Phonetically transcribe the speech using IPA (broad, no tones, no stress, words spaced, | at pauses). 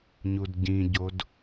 ɲudɟĩɟod